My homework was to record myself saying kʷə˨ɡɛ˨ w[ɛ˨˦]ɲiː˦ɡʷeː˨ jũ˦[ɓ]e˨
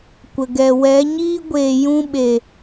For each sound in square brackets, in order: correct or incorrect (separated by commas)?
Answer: correct, correct